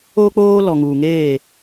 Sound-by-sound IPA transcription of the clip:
oː˦ k͡p oː˦ l ɔ˨ ŋ uː˨ ŋ eː˦˨

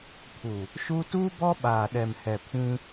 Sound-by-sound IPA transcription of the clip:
pʰ u˨ | ʃ u˦ t uː˦ b ɔ˦ ɓ aː˨ ɗ ɛ˨ m h ɛ˨ pʰ ĩ˦

